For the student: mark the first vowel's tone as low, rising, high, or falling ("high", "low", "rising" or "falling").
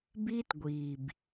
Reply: high